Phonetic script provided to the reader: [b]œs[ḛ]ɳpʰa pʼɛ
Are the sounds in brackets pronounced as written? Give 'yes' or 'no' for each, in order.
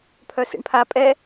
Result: no, yes

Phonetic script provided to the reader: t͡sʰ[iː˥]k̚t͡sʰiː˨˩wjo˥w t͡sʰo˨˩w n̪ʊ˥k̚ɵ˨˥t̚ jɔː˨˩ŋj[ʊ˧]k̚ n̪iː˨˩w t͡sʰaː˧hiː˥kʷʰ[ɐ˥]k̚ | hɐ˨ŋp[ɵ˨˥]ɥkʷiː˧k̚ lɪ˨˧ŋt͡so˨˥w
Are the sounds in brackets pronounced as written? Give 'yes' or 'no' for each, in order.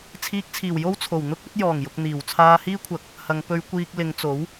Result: no, no, no, no

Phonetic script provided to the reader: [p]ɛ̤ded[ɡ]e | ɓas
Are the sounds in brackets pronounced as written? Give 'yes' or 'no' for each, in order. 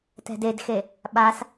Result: no, no

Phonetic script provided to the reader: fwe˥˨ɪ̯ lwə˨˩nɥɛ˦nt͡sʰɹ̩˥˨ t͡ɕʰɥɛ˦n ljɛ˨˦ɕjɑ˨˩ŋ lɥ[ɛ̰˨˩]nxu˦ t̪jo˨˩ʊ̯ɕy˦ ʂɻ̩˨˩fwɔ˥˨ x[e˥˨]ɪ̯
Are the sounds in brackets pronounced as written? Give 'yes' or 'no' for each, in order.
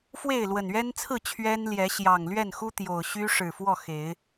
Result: no, no

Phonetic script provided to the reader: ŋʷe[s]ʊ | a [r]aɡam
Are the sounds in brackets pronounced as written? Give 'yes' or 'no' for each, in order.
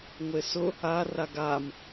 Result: yes, yes

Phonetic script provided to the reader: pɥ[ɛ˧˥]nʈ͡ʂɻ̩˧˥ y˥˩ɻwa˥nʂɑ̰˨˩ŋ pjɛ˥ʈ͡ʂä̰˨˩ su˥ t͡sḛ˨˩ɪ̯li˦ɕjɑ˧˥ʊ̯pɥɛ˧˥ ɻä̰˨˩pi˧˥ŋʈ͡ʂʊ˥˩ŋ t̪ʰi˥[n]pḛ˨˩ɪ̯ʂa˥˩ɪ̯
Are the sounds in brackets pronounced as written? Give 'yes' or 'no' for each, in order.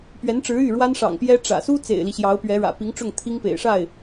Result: yes, no

